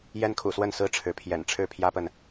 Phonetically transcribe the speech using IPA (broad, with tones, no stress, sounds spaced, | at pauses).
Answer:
j ɛ˦ n kʰ ṵ˨˩ s w ə˥˨ n s ɹ̩˦ ʈ͡ʂʰ ɻ̩˨˦ pʰ j ɛ̰˨˩ n ʈ͡ʂʰ ɻ̩˥˨ pʰ j ä˦ p ə˨ n